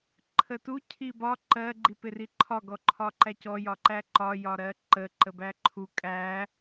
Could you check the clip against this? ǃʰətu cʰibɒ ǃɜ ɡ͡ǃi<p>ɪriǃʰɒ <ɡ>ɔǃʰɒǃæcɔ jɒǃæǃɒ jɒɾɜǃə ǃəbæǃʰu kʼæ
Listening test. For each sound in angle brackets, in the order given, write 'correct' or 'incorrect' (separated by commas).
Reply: correct, correct